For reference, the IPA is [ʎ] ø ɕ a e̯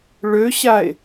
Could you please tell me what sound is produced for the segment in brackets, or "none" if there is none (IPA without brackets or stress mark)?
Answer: ɭ